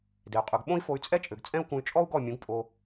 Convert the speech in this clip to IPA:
d e˨ y̯ qʼ ʉ˨ ɡ ɓ õ˦ i̯ f o˧ y̯ t͡sʼ ɛ˦ t͡ʃʼ ø˨ ɡ t͡sʼ ɛ̃˦ u̯ k ũ˧ y̯ t͡ʃʼ ɔ˦ u̯ ɡ ɔ˦˨ mʲ ũ˨˦ ɡ pʼ o˧

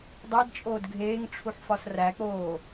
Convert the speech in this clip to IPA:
dˤ e d t͡ʃʼ oː d ɡʱ eː ŋ ʈ͡ʂʰ u ħ f ɒ s r æ k͡p oː

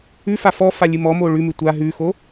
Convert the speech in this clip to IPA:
ʉ f a f ɔ f a lʲ ɨ m ɔ m o ɭ ʉ m ʉ tʷ a ɦ ʉ x o

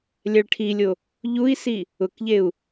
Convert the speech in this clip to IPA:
lʲ ɛ ɭ ʈʰ i lʲ o | ʎ u i̯ s i | ʊ k ʎ e u̯

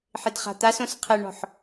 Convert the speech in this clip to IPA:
ħ ɪ d χ a̤ t̪ a s õ s qʰ ɛ ɳ ɔ̤ ħ

